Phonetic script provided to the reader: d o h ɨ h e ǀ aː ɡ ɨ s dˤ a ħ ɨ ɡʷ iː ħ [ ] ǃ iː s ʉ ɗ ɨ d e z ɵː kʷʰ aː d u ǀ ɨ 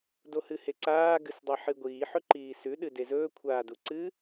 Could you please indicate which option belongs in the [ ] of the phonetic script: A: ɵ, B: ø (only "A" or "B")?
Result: A